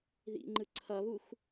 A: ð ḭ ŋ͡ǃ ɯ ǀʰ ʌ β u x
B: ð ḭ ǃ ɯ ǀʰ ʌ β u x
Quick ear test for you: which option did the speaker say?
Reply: A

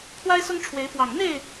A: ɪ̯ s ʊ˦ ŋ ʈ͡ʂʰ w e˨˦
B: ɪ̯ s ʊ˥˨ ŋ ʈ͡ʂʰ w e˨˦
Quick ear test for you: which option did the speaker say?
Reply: A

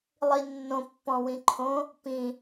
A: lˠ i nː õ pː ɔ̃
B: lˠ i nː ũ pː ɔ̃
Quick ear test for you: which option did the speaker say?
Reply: A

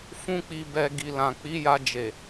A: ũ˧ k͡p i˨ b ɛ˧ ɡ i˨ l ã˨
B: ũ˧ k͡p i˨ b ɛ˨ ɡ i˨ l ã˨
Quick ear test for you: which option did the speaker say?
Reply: B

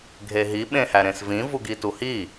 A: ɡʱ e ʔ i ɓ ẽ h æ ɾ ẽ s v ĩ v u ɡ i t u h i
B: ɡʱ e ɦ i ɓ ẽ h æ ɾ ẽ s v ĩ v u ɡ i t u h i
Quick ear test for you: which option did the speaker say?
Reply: B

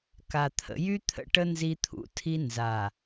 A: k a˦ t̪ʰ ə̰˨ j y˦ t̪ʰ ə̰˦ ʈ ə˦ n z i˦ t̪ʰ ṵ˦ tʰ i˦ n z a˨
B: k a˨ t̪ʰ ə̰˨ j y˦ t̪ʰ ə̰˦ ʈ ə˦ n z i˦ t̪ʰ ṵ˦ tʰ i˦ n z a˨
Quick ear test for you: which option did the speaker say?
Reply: B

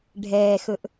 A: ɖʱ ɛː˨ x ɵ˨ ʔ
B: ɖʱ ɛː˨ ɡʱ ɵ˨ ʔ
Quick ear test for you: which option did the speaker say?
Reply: A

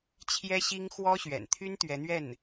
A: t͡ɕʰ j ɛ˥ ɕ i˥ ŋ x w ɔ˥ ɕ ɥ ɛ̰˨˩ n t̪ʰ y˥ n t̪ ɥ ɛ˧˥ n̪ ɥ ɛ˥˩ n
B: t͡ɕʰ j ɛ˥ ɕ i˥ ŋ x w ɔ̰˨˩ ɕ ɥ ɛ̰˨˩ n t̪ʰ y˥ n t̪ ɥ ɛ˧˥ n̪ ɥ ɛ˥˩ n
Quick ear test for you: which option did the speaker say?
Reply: A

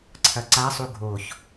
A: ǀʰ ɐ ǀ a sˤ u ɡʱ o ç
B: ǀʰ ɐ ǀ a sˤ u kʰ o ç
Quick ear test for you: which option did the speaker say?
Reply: A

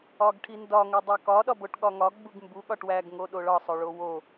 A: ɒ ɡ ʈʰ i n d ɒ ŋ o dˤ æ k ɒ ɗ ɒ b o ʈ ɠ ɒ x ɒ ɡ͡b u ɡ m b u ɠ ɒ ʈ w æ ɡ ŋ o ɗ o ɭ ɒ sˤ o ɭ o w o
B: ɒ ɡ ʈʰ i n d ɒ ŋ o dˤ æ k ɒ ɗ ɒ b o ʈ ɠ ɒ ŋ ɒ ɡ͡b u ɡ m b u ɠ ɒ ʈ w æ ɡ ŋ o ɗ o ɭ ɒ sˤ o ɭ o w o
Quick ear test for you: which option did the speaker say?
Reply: B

